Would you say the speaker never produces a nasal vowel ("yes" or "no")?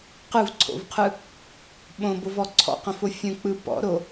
no